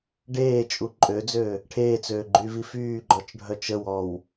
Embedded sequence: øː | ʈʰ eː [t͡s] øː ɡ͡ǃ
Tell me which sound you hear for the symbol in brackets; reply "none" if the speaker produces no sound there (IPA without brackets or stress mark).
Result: t͡s